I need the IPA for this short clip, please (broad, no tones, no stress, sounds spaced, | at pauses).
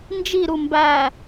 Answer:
n d͡ʒ i ɾ u m b æ